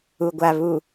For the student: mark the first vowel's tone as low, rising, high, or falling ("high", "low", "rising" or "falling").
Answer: low